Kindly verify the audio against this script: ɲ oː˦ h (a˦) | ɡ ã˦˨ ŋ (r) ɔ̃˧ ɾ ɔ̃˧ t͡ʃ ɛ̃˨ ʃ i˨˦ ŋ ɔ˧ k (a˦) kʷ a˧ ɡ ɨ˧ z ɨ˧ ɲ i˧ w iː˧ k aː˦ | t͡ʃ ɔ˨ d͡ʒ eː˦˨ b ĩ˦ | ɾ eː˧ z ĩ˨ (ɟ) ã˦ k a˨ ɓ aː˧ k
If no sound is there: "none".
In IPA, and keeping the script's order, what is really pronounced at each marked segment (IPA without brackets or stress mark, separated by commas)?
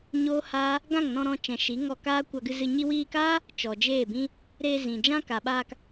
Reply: aː˦, n, aː˦, d͡ʒ